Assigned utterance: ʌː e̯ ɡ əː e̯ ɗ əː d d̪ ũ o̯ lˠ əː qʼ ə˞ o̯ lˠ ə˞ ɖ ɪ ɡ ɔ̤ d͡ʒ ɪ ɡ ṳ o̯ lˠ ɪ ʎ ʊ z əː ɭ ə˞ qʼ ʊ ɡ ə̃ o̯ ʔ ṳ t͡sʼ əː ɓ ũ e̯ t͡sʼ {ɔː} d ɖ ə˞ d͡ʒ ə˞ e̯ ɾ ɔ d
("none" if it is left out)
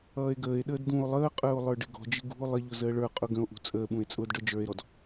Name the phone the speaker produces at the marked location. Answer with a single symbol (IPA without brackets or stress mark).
ʊː